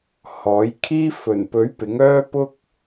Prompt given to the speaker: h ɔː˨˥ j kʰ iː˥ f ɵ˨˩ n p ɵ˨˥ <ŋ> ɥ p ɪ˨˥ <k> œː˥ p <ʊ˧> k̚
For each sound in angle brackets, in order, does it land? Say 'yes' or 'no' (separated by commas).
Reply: no, no, no